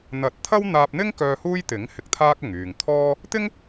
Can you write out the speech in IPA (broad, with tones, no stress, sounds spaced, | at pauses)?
n̪ ɐ˨˥ t̚ t̪ʰ ɐ˥ w n̪ aː˧ p̚ n̪ ɪ˥ ŋ k œː˧ h uː˥ j t̪ ɪ˨˥ ŋ h ɪ˧ k̚ t̪ʰ aː˥ k̚ ʊ˨ ŋ yː˨ ŋ t̪ʰ ɔː˥ | t̪ ɪ˥ ŋ